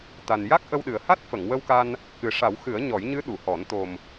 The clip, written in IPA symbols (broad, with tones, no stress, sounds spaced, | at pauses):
t̪ a˨˩ n j a˦˥ k̚ ʔ ə˧ w ɗ ɨ˨˩ ə̯ h a˦˥ t̚ f ə˨˩˨ ŋ w ə˧ w k a˧ n | k ɨ˨˩ ʂ a˨˩˦ w x ɨ˨˩˦ ə̯ ɲ ɔ˨˩˦ j ɲ ɨ˧˥ ɗ u˨˩˨ h ɔ˨˩˦ n t̪ o˨˩ m